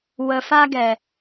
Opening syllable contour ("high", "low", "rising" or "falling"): low